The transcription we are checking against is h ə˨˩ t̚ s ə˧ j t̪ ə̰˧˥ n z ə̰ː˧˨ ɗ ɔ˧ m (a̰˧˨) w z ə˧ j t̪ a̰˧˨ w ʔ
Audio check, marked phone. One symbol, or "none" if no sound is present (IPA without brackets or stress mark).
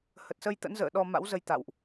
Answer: a̰˧˥